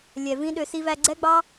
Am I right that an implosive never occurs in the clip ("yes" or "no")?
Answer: no